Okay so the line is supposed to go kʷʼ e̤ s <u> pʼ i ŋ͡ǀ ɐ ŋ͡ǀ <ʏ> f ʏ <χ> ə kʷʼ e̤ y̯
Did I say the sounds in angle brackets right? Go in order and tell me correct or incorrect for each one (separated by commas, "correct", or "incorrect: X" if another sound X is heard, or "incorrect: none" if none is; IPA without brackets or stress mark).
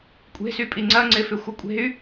incorrect: y, incorrect: ɪ, incorrect: xʷ